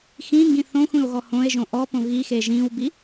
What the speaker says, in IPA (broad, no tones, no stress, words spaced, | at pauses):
xĩŋɡĩ θõxʷĩo̯ɣɔ hõe̯ʒõ ʔɔpõ ɣixe ʒĩwbi